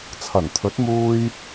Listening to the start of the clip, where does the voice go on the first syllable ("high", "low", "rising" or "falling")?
low